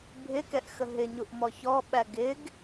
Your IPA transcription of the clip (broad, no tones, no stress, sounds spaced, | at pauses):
bʱ ɪ k ɛ ʔ x ə ɦ ɪ ɲ u ʔ m ɔ ç ɔ ɓ æ ɡ ɪ ɡ